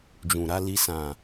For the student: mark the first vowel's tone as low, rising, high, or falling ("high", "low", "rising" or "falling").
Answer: low